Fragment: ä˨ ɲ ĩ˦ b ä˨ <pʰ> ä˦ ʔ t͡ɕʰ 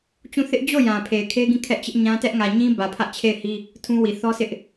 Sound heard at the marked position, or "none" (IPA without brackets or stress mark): pʰ